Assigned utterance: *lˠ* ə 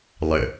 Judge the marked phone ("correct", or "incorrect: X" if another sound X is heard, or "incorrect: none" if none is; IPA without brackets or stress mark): correct